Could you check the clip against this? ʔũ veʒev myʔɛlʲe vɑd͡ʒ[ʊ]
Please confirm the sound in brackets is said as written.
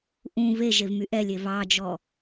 no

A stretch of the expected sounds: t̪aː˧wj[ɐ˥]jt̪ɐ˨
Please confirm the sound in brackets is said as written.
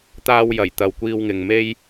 no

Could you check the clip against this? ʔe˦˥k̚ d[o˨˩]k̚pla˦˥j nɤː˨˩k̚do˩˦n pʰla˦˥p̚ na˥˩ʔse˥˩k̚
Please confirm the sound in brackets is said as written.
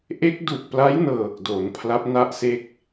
no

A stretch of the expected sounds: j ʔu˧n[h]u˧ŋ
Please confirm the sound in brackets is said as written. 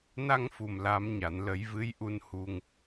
yes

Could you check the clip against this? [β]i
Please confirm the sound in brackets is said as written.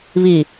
yes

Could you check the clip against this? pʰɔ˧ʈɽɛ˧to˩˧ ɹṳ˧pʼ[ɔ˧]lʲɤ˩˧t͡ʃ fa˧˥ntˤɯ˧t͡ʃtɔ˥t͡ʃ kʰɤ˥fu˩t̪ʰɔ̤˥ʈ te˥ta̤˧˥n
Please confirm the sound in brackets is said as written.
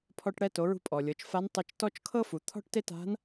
no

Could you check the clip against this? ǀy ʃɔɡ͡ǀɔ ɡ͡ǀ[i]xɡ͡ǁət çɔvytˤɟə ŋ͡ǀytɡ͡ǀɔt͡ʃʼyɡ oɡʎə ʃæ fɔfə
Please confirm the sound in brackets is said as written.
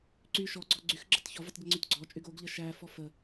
no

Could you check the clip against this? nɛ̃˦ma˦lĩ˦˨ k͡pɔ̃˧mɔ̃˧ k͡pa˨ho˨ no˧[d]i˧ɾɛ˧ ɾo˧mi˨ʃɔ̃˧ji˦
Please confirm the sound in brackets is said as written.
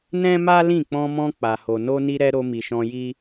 no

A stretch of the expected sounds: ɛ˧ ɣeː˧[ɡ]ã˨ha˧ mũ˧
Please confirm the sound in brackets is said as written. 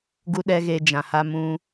no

